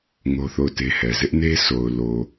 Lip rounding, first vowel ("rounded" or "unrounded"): rounded